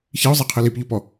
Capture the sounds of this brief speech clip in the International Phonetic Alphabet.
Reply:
çiʊ̯zˤiqʰɨ lipʎopɔ

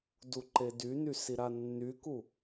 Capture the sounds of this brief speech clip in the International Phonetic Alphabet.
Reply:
duǃedyny siɾanːyku

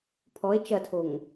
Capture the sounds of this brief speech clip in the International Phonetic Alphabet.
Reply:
pʰɔe̯ t͡ʃɐtʰoŋ

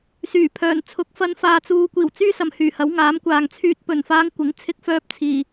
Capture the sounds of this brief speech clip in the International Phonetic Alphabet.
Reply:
syː˨˩ pʰœː˨˩nt͡sʰʊ˨˥k̚fɐ˧n faː˨t͡suː˨kʷiː˨˩w t͡syː˥ sɐ˨mhyː˨˩hɐ˨˥w ŋaː˨˥mkʷaː˨ŋ t͡sʰyː˧t̚pɵ˨˩n faː˧ŋkʷɪ˨˥ŋt͡sʰɪ˧k̚fœː˧p̚ t͡sʰiː˨˩

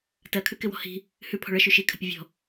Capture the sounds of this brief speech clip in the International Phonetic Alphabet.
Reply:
tɜkʰʉ kɪwɔ̤hi̤ | hʉpʰɔ̤ ɭə ʃʉʃi kʰə̤pʲəvʲɔ̤

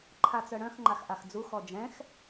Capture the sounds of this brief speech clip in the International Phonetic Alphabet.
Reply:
ǃʰat͡sœɽœ̃x ŋ͡ǃaxʔaxd͡zu xɔd͡ʒɛ̃x

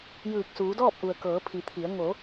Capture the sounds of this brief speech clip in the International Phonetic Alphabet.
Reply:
jɯː˧˩k̚suː˩˧dɔː˥˨p̚ʔu˩ə̯ kɤː˩˧pʰi˩˧t̪ʰi˩˧ə̯ ŋo˩˧

